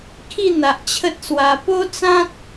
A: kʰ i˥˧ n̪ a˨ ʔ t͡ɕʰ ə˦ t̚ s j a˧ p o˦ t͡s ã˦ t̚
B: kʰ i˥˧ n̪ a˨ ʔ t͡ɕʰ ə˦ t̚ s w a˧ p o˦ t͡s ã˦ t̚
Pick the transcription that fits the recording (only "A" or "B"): B